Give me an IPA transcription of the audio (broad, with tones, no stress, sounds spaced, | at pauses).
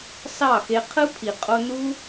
s ɑ˦˨ x e˧ qʰ ɯ˦ pʰ i˨ qʼ o˧ n u˦